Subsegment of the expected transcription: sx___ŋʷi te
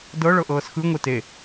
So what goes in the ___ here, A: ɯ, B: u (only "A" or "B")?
A